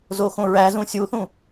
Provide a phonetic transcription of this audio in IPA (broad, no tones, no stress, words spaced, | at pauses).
zoxõɹæzũ sʲuθũ